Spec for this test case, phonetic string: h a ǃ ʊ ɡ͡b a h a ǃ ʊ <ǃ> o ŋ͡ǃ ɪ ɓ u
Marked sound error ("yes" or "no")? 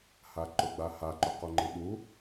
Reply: yes